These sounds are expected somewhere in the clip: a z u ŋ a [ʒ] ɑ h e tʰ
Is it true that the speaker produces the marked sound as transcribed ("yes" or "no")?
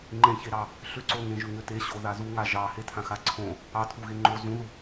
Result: yes